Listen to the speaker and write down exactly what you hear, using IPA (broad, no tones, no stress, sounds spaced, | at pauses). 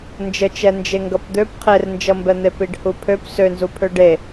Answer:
n d͡ʒ ə t͡ʃ ɛ n d͡ʒ e ŋ ɡ ʌ p d̪ ø p qʰ e r n d͡ʒ ʌ m b ɛ n̪ e p i ɖ h u pʰ ø p s ø n z u pʰ ø ɖ e